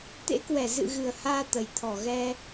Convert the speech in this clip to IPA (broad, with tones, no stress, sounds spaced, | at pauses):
t̪ ḛ˧˥ k w ɛ˧˩ z ɨ̰˧˨ ɣ ɨ˨˩ ə̯ h aː˧ t̪ ə˨˩ j t̪ʰ ɔ˧˩ ɣ ɛ˧